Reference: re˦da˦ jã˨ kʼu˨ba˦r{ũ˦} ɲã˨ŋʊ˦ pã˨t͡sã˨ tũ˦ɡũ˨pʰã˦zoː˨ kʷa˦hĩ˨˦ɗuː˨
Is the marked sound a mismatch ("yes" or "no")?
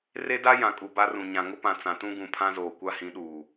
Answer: yes